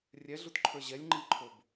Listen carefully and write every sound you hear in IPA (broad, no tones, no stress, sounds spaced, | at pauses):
rʲ ɛ ɮ u t ǃʰ ə˞ ʑ ɛ lʲ ŋ͡ǃ i ǃʰ o b